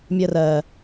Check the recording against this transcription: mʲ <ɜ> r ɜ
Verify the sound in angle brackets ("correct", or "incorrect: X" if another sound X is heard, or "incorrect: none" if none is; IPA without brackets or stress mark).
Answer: correct